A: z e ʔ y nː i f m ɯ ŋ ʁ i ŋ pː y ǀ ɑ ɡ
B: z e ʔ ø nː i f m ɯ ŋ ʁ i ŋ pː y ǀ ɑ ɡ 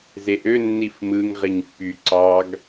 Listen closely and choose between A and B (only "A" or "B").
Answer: B